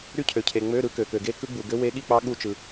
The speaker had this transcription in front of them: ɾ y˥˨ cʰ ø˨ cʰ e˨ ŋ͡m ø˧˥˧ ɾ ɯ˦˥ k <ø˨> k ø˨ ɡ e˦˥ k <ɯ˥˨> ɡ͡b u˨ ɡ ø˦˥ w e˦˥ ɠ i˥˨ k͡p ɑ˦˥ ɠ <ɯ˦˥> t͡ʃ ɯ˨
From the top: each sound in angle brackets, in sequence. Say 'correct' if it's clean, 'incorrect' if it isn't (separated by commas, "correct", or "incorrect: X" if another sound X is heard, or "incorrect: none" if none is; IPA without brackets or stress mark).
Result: correct, incorrect: ɯ˦˥, incorrect: u˦˥